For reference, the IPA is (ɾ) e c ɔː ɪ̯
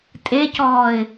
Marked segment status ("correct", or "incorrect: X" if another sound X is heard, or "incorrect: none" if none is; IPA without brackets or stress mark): incorrect: tʼ